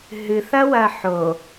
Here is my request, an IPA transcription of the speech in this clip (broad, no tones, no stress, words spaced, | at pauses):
ɦɨθɐwɐ ħo